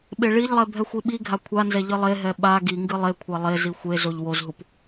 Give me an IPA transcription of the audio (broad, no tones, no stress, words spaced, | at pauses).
ɓeɭiʎlˠɛ bʱɛxʷiɓiɡʱa kʷʰanzɛ ʎɨlˠeɦɛ ɓa ɡi ŋɡɨlˠekʷʰa lˠe zixʷezoʎ wozɦup